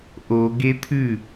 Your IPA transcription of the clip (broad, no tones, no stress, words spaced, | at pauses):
ʔo ɡet̪ʰʉ